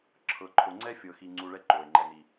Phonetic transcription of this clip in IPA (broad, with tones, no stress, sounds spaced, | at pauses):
ǁʰ ɤ˨ ǃʰ o˨ ŋ͡ǀ ɛ˦ fʲ ɤ˨ x i˧ ŋ͡ǀ u˧ ɭ ɛ˦ ǃ o˨ e̯ ŋ͡ǃ ɛ˨ n i˨